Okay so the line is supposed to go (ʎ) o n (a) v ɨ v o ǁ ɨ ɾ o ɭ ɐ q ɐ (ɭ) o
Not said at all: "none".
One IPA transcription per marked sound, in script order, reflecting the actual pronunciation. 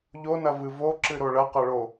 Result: ʎ, ɐ, ɭ

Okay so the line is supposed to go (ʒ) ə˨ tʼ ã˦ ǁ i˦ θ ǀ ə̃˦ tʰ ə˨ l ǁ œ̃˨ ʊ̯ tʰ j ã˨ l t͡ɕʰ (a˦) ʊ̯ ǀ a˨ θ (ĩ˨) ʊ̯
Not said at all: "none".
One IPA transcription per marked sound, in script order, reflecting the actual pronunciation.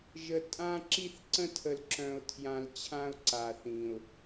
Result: ʒ, ã˦, ĩ˨

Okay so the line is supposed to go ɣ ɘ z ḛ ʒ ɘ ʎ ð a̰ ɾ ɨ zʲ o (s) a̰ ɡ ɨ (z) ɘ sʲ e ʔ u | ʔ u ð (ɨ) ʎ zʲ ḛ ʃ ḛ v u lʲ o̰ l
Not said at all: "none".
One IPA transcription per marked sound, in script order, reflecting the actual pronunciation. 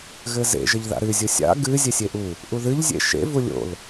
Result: sʲ, zʲ, ɨ

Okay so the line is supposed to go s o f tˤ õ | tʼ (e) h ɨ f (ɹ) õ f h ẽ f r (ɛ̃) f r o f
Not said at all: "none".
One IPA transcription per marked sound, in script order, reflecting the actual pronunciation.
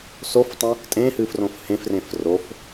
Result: ẽ, r, ẽ

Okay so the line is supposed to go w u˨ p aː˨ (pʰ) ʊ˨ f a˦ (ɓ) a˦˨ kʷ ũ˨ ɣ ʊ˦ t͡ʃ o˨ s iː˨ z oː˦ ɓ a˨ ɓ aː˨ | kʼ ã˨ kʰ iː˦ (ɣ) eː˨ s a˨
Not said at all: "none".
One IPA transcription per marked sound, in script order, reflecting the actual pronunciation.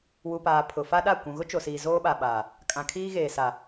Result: pʰ, ɗ, ɣ

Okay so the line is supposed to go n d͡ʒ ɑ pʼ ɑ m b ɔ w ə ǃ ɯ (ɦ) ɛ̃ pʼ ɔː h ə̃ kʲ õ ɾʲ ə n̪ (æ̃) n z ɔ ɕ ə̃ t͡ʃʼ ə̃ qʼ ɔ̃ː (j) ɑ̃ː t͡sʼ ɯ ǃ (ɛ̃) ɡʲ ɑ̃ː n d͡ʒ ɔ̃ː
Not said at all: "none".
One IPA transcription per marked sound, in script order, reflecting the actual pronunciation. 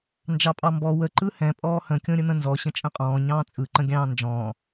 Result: h, ə̃, ɲ, ə̃

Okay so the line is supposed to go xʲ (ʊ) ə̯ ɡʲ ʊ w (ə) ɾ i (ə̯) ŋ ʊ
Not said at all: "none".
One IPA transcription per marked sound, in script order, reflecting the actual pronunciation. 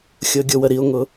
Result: ʊ, ə, ʊ̯

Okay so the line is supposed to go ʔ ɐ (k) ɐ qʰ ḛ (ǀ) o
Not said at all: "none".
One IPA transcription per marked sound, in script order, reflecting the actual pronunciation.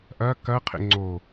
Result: k, ŋ͡ǀ

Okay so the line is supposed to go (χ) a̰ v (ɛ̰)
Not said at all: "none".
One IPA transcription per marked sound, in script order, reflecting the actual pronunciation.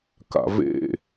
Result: k, ḛ

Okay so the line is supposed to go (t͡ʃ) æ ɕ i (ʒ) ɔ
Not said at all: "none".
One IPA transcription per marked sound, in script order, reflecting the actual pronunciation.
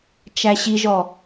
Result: t͡ʃ, ʒ

